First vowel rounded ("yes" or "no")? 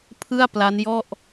no